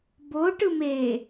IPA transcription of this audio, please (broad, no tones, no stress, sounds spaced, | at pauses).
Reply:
b o ʈ ɯ m e